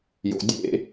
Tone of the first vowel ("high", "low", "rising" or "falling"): low